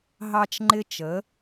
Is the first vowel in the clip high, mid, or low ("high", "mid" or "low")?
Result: low